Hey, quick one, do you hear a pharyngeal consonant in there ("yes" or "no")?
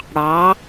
no